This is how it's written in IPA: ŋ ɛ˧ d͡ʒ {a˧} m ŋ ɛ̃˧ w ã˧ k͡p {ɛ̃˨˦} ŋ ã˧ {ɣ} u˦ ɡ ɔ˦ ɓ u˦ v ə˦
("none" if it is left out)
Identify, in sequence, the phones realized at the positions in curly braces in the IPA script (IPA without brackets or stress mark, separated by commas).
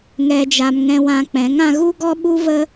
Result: a˧, ɛ̃˨˦, ɣ